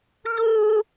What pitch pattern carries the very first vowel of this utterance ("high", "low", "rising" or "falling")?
high